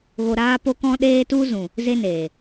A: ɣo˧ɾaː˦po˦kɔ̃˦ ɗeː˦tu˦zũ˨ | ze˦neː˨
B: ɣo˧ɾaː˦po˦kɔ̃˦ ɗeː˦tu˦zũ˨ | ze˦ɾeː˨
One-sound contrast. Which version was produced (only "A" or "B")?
A